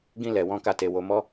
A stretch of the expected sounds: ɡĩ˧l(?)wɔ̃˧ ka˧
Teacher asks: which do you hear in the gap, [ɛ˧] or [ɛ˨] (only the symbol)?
ɛ˨